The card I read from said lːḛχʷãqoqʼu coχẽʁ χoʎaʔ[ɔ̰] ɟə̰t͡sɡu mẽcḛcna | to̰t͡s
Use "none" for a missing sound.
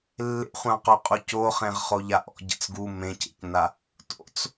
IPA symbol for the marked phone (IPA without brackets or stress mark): ɔ̰